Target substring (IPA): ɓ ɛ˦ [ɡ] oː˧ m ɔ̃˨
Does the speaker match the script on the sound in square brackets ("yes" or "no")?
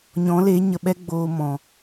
no